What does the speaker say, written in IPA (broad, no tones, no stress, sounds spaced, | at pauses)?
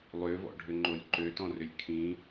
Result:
lˠ ø v ɔ̰ ɖʱ ʏ ŋ͡ǃ o lʲ ǃ ø t ɔ̃ r ʏ lʲ kʰ ĩ